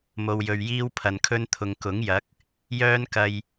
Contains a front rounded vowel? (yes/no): yes